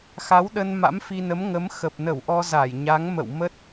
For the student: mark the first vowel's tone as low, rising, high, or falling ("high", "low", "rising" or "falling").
rising